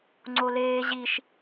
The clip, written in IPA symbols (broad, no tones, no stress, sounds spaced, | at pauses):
ŋ͡ǀ o l eː ʑ i ʃ